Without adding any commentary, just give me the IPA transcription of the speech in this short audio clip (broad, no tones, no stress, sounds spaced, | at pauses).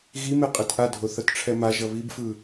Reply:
ɣ i m e qʼ e t ʔ a dʱ o θ ʌ t ʈ͡ʂʰ ɛ m a ʒ ʌ β i b f ɯ